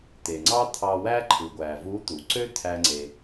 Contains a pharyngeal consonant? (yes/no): no